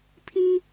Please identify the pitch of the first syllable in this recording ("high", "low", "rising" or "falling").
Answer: high